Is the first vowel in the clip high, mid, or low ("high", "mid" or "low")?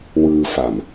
high